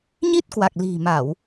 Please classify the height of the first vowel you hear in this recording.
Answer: high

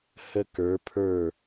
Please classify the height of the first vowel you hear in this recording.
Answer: mid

